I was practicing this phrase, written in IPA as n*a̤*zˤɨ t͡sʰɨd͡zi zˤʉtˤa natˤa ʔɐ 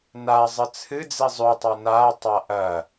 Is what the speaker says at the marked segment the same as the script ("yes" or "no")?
no